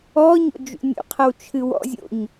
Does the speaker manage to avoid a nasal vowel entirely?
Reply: yes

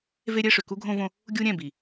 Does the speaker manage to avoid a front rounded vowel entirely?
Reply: no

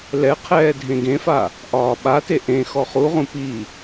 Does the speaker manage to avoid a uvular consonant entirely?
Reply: no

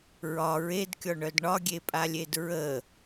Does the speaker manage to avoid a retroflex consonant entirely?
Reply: no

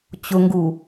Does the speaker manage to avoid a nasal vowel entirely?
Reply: yes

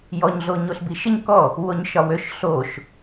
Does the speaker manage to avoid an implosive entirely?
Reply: yes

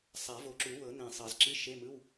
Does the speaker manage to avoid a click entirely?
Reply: no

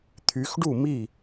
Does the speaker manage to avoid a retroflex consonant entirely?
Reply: no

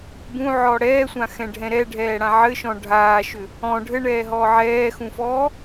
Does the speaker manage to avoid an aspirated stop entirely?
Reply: yes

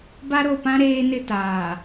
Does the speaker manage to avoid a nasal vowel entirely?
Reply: no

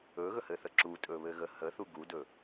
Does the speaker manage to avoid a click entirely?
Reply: no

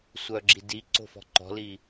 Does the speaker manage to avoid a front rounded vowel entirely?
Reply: no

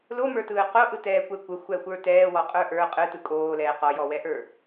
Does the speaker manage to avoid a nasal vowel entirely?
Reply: yes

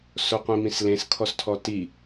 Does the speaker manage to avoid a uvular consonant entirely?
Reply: no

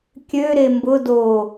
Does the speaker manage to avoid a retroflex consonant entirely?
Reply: yes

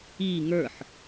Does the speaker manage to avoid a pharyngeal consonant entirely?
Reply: no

